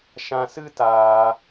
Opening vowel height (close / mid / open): open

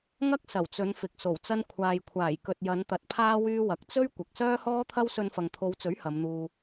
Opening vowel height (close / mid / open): open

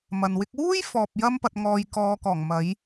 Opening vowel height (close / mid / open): open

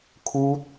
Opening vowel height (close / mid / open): close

